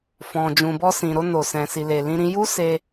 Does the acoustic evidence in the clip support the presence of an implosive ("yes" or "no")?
no